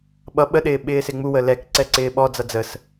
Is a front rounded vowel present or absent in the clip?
absent